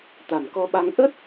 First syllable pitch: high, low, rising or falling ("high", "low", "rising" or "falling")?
low